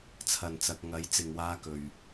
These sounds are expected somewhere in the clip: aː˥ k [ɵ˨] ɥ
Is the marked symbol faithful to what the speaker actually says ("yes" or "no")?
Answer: yes